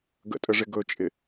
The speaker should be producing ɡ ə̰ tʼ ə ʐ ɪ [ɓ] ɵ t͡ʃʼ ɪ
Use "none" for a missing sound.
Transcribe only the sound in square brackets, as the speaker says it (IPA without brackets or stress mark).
ɡ